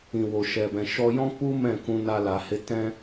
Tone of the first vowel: low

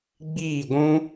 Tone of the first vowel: falling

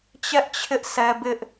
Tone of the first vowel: high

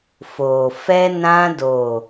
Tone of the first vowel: low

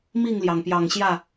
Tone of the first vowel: falling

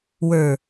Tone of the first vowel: low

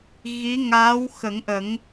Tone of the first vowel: rising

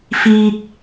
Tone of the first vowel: high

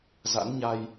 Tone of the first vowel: rising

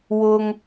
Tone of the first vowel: high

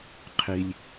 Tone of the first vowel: low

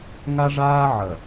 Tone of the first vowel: high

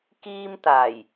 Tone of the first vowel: high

